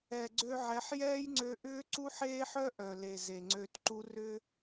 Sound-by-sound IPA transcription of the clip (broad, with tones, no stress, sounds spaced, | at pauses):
ɛ˨ ɡ͡ǀ ø˧ ʕ ɛ˨˦ ħ j ɛː˦ j ŋ͡ǀ ø˧ ʔ ʏː˦ ǀ u˦ ħ eː˦ ħ œ˦ ʔ œ˨ l e˨ z e˨ ŋ͡ǀ ø˧ t ǃ u˦ r ʏ˦